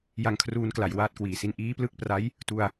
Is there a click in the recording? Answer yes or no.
no